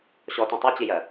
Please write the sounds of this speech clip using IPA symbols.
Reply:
ɕɔtũ tˤʌt͡ɕijɜ

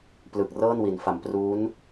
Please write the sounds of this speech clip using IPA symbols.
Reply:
plɯ˨˩k̚rɤː˥˩nwi˩˦nfa˩˦m pruː˦˥n

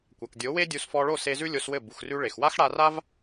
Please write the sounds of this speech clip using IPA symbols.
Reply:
kʷa˨kdʲo˨˦we˦dʲu˧s fɔ˧ɭo˦˨ se˧ zʉ˦lʲo˧s wɘ˦˨ bu˨xrʉ˧ ɭe˨x wa˦xɽa˧ra˦v

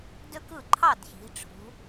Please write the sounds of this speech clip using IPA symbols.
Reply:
dø˥kɯ˥˨ ǃʰɑ˥˨d çi̤˨˦ʈ͡ʂʰṳ˨˦

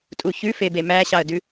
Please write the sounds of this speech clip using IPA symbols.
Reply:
tʼuçʉfebe mæɕɑə̯dʉ

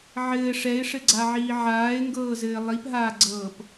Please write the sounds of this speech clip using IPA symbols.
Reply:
ʕɘːʂ ɛɪ̯ʂɘɡ͡ǀaʕiː ʕaːɪ̯ŋɡɤːzɘː lˠipɦaːɡ͡ǀɤːp

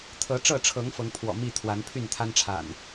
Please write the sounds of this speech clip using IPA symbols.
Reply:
t̪ʰɤ˨˦ʈ͡ʂɤ˥˨ʈ͡ʂʰɤ˨˦ŋ fɤ˨˦ŋpʰwɔ̰˨˩mi˥˨ t̪ʰwa˨˦npʰy˥˨nt̪ʰa˦nʈ͡ʂʰa̰˨˩n

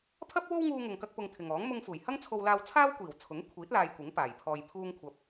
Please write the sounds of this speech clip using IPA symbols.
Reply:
pʰɐ˥p̚wo˥w ŋuː˧ŋʊ˨ŋkɐ˧k̚ pʊ˧ŋt̪ʰɪ˨ŋɔː˨˥ŋ mʊ˧ŋfuː˨˩jhɐ˥ŋ t͡sʰo˧wlaː˧wt͡sʰaː˥wkʷiː˨˩w t͡sʰʊ˨˥ŋ kʷʰiː˨˥t̚ laː˧jkʷɪ˨˥ŋpaː˨˩j pʰɔː˨jpʰuː˧ŋkʷʰɐ˨˥p̚

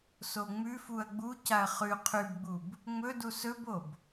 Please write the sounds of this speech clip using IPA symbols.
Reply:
soŋ͡mʉfuɐ̯ ɡ͡bucaɐ̯ χʉ qʰʉbɡ͡bub | ŋ͡mɵdu sɵbob

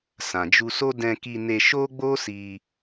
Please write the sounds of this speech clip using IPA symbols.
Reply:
sã˨d͡ʒu˧ so˦ dɛ̃˧ki˧ ne˧ʃo˦ɡ͡bo˦ si˧

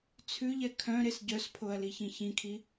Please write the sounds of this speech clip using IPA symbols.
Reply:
t͡sʰʉʎɛ kʰœ̃ ɾesɟœspʰoɐ̯ liçĩçĩkʰi

